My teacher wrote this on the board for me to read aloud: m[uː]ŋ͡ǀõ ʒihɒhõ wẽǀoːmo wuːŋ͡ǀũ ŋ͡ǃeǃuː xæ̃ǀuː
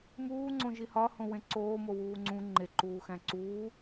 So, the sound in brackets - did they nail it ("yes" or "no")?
yes